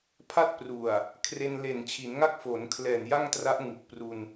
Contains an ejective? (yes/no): no